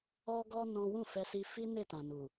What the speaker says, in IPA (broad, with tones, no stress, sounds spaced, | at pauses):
ɔ˧ ɡ ɔ˧ n ɔ̃˦ w ũ˦˨ f ɛ˧ s i˧ f i˦ n e˦˨ t ã˨ n u˨